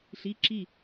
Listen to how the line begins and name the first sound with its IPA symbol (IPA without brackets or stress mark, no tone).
ɬ